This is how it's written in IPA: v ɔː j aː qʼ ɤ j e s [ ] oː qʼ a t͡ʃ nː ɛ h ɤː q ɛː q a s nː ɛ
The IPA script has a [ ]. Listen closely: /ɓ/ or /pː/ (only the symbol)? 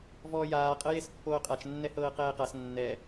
pː